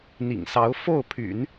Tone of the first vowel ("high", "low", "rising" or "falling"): low